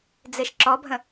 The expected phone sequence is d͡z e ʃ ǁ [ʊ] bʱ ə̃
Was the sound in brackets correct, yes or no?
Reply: no